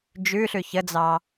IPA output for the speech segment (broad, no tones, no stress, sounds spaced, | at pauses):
d͡ʒ ʉ ɬ ʉ ç ə d͡z ɑ